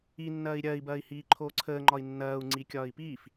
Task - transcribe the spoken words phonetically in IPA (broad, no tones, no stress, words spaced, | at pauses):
inːɐːi̯ ɾʲɐːi̯bɐːi̯hiː ǃʰoːǀʰəːŋ͡ǃɒi̯ nːɐːu̯ ŋ͡ǀikʲɒːi̯piːf